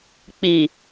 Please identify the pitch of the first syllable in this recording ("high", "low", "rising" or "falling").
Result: low